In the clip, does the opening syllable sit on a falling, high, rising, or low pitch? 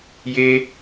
high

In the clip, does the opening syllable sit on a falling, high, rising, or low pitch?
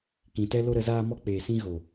low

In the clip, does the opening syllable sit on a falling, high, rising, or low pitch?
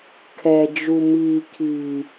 low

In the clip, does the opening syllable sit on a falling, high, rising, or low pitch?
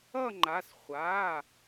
falling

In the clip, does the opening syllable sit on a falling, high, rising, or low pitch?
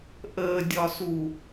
low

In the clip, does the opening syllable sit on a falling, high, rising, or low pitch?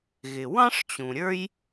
low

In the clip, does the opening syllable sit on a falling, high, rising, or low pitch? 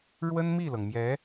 high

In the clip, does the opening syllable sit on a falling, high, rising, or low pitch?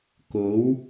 rising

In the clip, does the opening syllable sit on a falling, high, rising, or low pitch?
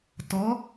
rising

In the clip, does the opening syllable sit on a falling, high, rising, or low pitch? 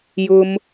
high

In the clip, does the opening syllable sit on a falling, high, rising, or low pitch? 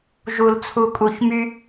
low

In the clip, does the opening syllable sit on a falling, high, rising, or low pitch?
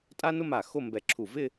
high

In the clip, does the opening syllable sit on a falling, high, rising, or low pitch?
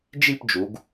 falling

